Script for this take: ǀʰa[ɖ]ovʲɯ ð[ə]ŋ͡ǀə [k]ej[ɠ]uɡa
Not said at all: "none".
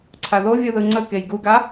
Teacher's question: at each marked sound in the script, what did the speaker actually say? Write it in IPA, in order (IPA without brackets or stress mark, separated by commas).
ð, ɯ, k, ɡ